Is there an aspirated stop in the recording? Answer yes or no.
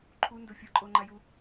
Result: yes